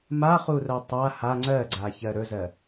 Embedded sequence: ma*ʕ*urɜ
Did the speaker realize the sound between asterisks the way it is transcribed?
no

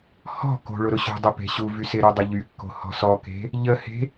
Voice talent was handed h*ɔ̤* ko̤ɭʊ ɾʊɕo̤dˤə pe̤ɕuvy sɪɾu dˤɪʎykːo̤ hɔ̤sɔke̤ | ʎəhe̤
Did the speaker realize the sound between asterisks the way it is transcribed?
yes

